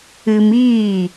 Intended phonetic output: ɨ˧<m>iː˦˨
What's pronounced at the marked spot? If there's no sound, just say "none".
m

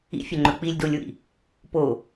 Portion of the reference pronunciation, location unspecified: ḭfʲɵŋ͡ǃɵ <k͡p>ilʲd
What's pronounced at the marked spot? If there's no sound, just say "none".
k͡p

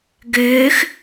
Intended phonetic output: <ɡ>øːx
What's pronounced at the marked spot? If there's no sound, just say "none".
ɡ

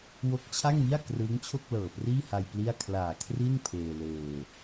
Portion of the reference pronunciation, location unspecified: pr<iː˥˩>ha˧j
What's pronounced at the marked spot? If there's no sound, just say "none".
iː˥˩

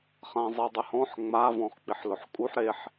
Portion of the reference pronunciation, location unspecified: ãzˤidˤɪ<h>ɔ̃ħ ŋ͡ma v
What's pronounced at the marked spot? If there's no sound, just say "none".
h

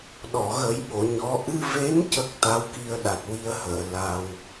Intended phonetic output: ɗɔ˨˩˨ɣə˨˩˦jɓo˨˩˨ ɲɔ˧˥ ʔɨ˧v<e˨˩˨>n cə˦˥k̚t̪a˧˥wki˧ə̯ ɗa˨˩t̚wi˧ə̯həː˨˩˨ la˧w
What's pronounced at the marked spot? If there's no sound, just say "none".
e˧˥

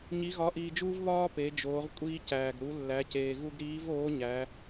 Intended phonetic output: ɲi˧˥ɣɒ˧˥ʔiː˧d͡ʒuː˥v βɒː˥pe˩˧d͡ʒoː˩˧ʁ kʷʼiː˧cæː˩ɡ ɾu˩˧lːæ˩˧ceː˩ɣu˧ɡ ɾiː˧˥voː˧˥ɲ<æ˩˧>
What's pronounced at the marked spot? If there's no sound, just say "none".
æ˩˧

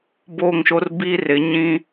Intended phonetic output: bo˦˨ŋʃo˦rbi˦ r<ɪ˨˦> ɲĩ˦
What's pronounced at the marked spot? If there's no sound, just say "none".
ɪ˨˦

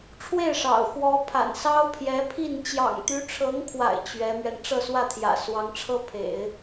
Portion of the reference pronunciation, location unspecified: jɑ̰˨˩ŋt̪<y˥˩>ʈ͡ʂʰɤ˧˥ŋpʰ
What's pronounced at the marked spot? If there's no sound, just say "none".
y˧˥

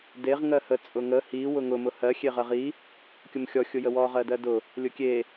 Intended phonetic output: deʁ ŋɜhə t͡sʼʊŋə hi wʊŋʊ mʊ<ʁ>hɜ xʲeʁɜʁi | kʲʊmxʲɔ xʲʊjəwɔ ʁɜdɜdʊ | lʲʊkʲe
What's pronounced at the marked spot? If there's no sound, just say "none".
none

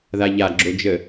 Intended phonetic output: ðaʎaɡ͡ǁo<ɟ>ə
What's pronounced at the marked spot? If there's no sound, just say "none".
d͡ʒ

